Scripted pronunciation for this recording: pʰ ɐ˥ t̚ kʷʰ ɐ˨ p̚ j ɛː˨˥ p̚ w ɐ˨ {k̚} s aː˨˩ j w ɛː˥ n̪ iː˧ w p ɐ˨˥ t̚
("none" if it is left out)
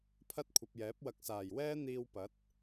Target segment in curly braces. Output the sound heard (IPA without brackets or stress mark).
k̚